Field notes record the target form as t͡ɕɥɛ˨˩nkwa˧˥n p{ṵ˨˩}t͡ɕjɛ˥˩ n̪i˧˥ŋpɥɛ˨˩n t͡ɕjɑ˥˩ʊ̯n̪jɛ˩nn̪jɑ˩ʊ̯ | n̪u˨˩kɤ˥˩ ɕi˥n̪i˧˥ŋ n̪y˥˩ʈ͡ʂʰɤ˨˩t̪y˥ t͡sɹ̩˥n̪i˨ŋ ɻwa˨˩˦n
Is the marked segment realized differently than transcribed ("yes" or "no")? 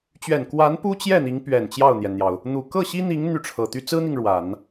yes